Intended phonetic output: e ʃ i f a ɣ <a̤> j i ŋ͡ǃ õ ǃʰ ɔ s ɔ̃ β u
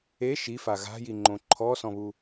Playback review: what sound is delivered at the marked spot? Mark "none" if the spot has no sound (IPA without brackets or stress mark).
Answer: a̤